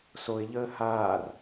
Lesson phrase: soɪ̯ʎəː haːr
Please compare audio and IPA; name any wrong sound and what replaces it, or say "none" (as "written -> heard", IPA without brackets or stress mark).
none